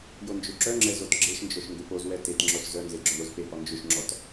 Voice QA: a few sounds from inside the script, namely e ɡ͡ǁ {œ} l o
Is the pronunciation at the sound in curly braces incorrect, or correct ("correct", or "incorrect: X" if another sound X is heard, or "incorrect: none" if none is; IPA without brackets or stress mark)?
correct